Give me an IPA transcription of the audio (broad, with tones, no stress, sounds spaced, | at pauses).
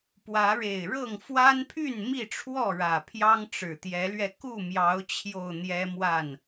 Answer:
p w ä˨˦ ɻ e˨˩ ɪ̯ ɻ ɤ˥˨ ŋ f w a˦ n pʰ y˥˨ n m i˥˨ ʈ͡ʂʰ w ɔ˥˨ ɻ ä˨˩ pʰ j ɑ˦ ŋ ʈ͡ʂ ɻ̩˨˩ t̪ j ɛ˨˦ l ɥ ɛ˧ k u˥˨ m j ɑ˨˦ ʊ̯ t͡ɕʰ j o˨˩ ʊ̯ n̪ j ɛ˦ m w a˥˨ n